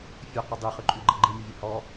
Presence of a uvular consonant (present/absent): present